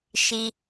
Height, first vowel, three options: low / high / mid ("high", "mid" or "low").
high